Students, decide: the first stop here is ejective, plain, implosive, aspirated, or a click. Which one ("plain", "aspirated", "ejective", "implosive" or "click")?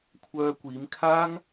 aspirated